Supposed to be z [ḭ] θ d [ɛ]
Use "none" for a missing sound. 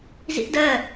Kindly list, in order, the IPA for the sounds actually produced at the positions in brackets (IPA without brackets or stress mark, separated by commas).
ḭ, ɜ